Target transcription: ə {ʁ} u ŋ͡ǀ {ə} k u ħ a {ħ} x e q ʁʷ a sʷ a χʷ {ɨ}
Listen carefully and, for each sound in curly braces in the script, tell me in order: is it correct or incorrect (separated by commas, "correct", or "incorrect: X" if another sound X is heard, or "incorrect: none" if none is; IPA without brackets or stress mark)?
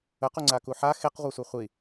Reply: incorrect: q, incorrect: a, incorrect: none, incorrect: i